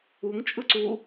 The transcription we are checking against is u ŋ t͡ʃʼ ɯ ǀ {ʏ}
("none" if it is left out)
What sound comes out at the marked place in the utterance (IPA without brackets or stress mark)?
u